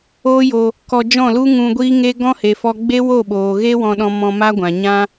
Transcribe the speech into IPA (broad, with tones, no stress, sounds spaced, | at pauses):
oː˦ j o˧ | k ɔ˧ d͡ʒ ɔ̃˦˨ l u˦ ŋ ũ˧ ɡʷ iː˦ ŋ e˦ ɡ ɔ̃˦ h e˨ f ɔ˧ ɡ͡b e˦ w o˦˨ ɓ oː˨ ɣ e˦ w ɔ̃˧ ɗ ɔ̃˧ m ɔ̃˧ m a˦ ɡʷ ã˨ ɲ ã˦